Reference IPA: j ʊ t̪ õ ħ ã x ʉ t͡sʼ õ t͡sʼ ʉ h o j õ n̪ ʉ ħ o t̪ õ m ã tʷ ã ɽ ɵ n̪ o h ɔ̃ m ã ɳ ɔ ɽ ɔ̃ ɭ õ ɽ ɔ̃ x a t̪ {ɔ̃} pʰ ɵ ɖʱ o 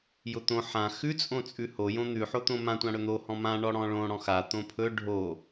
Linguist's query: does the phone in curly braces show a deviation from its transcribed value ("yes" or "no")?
yes